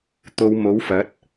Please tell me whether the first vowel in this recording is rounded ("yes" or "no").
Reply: yes